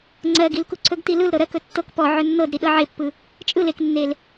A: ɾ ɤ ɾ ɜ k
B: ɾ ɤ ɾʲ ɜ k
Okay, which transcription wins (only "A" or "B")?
A